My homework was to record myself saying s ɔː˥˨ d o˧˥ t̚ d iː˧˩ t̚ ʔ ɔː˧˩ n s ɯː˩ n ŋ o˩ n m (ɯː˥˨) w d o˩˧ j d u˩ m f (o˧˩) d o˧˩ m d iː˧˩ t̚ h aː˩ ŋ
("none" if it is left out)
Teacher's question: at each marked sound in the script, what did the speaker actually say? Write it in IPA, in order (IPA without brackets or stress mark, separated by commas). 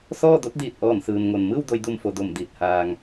ɯː˥˨, o˩